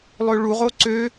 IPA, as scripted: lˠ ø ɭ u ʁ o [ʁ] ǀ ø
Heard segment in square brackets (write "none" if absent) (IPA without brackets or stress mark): none